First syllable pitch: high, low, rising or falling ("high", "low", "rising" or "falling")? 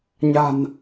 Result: low